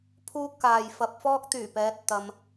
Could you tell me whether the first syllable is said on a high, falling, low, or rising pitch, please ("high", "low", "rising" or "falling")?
high